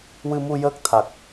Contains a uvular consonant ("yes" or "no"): no